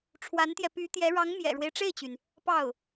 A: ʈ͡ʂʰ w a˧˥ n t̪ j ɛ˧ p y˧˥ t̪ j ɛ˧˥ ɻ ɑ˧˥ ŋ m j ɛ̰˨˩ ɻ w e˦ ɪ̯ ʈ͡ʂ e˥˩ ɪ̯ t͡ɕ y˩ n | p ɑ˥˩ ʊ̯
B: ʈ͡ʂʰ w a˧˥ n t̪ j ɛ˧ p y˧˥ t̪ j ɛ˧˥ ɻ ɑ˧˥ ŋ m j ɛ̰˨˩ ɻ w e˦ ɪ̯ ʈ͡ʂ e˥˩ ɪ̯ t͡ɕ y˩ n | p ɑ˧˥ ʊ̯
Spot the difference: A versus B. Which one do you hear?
A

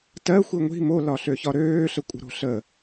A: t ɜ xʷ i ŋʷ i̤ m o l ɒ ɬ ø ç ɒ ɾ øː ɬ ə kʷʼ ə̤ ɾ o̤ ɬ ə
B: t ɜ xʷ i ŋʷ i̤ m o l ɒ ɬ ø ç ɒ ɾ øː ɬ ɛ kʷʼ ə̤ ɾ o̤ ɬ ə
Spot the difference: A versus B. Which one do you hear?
A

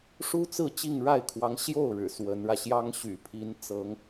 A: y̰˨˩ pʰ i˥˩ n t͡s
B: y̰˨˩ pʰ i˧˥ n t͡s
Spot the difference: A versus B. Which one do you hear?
B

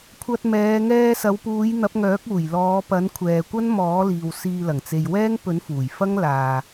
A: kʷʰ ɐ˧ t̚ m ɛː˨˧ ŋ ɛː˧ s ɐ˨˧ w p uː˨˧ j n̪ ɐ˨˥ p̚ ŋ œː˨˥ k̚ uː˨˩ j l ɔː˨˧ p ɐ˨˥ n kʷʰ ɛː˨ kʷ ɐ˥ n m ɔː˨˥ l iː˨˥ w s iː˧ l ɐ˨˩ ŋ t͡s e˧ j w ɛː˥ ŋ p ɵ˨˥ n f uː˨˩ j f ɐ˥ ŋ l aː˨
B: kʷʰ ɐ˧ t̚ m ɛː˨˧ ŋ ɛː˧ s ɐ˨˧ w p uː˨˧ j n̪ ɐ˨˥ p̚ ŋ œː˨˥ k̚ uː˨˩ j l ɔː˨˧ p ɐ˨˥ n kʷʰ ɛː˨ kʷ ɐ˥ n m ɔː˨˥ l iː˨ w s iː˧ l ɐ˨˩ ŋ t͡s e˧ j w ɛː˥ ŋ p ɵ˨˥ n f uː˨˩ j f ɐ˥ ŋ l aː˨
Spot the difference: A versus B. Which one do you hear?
B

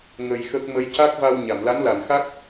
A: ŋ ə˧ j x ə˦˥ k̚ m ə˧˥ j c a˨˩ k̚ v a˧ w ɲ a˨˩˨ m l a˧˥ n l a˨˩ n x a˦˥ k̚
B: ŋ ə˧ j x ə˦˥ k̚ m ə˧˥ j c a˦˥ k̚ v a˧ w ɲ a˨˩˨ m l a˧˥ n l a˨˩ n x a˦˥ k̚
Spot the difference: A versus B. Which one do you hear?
B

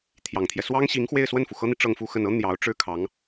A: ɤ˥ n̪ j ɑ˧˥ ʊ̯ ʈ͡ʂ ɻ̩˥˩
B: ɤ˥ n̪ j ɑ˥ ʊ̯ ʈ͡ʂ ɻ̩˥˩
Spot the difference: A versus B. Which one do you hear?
A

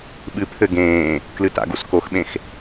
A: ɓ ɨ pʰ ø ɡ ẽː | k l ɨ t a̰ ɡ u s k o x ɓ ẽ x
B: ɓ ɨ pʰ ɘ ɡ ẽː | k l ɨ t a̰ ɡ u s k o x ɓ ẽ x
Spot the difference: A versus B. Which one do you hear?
B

